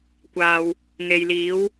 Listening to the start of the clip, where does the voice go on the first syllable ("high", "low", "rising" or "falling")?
low